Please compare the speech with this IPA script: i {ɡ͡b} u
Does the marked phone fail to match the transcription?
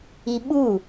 yes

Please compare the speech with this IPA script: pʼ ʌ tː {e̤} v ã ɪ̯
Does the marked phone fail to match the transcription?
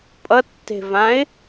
no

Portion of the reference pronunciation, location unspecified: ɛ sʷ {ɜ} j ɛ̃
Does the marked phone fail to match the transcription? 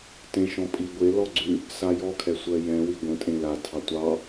no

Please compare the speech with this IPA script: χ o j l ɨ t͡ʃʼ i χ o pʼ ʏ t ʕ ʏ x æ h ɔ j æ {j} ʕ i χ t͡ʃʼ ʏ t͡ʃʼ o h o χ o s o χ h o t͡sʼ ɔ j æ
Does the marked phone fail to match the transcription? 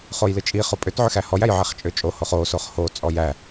no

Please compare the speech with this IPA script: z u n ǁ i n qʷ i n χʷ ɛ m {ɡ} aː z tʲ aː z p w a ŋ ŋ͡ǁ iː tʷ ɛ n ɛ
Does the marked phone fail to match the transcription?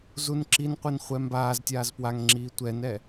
yes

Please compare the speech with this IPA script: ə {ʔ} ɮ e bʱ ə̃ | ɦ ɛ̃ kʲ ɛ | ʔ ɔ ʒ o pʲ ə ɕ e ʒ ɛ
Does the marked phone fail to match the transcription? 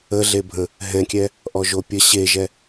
yes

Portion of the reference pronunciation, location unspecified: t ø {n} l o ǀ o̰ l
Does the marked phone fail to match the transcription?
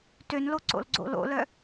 no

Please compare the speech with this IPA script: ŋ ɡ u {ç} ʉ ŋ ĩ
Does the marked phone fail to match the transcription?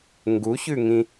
no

